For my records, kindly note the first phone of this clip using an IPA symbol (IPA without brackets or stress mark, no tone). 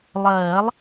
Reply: lˠ